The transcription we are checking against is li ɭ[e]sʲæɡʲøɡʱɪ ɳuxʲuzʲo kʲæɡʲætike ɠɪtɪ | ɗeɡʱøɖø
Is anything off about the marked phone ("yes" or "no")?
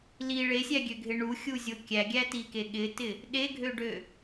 no